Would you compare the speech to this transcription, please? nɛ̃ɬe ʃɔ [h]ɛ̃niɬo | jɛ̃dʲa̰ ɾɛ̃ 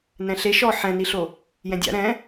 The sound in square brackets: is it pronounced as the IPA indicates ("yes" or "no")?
no